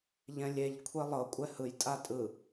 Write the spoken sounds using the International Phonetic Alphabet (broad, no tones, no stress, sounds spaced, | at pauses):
ʎ ɛ̃ lʲ e ʎ kʷʰ e lˠ ɤ kʷʼ ɛ h ɯ j tʼ a tʼ ɯ